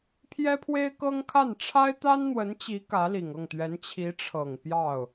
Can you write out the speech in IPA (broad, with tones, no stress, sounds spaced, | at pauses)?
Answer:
pʰ j ɛ˥ pʰ w e˥ ɪ̯ k ɤ˥ ŋ kʰ a˥˩ n ʈ͡ʂʰ a˥ ɪ̯ t̪ a˥ n n̪ w ə˧˥ n t͡ɕ i˧˥ k ä˧˥ l i˨˩ ŋ ɤ˥˩ ŋ t̪ ɥ ɛ˧˥ n t͡ɕʰ i˧˥ ʈ͡ʂʰ ɤ˨˩ ŋ p j ɑ˥˩ ʊ̯